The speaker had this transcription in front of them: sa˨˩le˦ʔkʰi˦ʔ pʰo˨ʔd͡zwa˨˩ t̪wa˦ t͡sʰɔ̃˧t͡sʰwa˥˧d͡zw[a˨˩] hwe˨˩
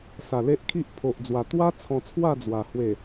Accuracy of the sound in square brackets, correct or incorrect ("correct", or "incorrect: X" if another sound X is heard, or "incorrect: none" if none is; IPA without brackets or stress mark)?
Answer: correct